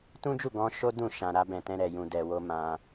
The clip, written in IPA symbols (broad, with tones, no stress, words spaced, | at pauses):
tũ˦d͡ʒu˦˨ɡɔ̃˧ ʃo˦ dũ˦˨ʃã˨ ɾa˧ bɛ̃˨tɛ̃˧ ɾɛ˨ jũ˨dɛ˨wo˧ mã˧